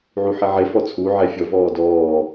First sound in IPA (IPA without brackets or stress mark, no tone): ʕ